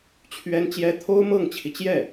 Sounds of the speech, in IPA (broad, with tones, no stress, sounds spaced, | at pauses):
t͡ɕʰ ɥ ɛ˥ n t͡ɕ j ɛ˧˥ t̪ʰ o˥ ʊ̯ m ɤ˥˩ ŋ t͡ɕʰ i˩ t͡ɕ j ɛ˥˩